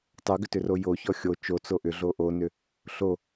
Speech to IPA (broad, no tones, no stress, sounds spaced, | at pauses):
tˤ o ɡ ʏ t ʏ r o j o ç ɔ xʲ o t͡ʃ o t͡s o ʔ ʏ ɮ o ʔ o n ʏ | ɬ o